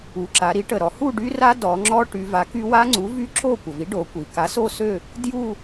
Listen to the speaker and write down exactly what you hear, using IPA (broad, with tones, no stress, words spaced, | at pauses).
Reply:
u˩˧ǁa˩˧ɾi˨˥ ʈə˩ ɾɔ˩˧hu˥˧ɖy˦˥ra˦˥ dɔ˩˧ŋ͡ǁɔ˦˥ʈy˩˧ va˨˥ky˦˥ wa˦˥ŋ͡ǀu˨˥vy˦˥ǁo˥˧ kʷə˩vi˨˥ɖo˩˧ kʷi˩ ka˨˥so˥˧sø˥˧ | dju˥˧